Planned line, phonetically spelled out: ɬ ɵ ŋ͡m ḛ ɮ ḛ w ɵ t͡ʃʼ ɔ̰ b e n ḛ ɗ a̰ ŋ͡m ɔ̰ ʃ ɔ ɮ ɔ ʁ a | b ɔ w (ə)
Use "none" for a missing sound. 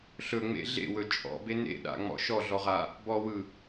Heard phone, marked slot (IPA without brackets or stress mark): ɯ